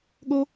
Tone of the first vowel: high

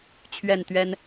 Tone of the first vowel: falling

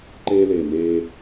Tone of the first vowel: high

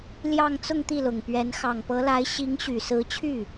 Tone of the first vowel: falling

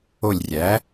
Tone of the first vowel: falling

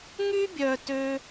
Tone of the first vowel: high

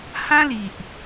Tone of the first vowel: high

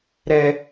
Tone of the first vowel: low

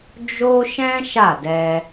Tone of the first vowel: high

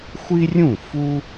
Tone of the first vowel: high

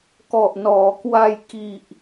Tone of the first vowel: low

